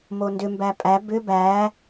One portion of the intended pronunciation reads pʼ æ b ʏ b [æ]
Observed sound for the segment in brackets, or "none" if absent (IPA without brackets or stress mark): æ